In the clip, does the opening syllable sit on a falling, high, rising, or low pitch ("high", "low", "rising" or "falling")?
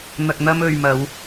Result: low